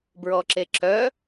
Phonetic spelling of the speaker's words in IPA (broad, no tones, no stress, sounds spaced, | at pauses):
b ɹ ɔ ǁ e ǁ œ